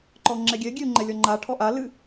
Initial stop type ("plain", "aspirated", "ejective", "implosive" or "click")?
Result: click